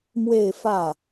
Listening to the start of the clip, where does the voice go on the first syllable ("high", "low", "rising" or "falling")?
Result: falling